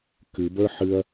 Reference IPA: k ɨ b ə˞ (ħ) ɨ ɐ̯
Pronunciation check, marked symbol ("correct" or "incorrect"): correct